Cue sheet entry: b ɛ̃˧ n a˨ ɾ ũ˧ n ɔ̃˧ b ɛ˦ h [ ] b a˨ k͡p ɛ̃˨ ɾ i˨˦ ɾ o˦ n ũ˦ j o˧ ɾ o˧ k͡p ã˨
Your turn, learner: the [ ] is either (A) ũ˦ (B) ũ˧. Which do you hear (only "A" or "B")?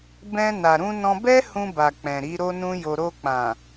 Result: B